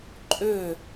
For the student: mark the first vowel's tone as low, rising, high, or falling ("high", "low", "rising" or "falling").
falling